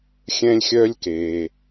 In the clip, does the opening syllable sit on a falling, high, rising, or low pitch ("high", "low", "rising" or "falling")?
high